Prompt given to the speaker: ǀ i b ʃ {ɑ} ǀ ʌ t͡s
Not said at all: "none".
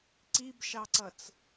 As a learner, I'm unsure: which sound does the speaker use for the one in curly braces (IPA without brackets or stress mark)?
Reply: ɑ